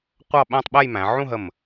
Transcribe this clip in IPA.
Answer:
qʷ ɑ˥˧ ɓ æ̃˥˧ tˤ ɓ ɛ˥˧ j m æ̃˩˧ ʕ ũ˥˧ ɦ ə˧˩ m

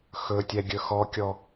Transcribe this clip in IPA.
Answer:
x ɵ tʲ ɛ ɡʲ ɵ x ɔ kʲ ɔ

